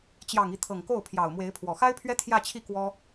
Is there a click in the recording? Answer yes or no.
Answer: no